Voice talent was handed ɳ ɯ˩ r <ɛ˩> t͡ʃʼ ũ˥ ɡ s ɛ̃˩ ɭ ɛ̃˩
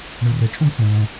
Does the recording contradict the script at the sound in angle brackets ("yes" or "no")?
no